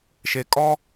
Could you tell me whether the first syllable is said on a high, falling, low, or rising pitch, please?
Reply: rising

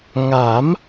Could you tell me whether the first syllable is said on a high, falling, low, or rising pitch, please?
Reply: rising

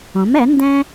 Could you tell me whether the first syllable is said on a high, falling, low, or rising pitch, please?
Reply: rising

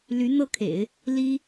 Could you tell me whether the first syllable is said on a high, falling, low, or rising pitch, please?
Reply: rising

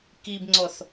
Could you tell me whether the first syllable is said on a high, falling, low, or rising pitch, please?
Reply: low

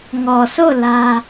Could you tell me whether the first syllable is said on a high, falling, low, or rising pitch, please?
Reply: low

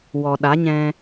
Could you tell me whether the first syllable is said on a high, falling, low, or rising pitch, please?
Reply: low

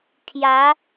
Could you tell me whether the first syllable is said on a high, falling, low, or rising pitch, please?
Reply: rising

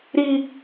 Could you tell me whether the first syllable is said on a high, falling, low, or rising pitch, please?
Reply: high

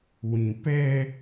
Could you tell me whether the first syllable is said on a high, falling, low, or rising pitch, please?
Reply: low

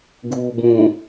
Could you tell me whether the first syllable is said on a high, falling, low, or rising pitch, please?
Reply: low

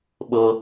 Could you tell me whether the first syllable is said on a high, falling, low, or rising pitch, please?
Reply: high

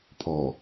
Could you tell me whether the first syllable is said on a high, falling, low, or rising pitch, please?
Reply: low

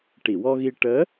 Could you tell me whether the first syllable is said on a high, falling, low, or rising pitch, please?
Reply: low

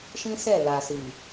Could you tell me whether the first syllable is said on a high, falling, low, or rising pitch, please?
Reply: high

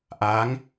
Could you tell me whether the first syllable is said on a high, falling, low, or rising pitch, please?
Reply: rising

